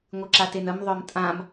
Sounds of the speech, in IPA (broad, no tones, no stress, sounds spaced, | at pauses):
ŋʷ ɨ ǁ a t e n ə m ðˤ œ m tʼ ã m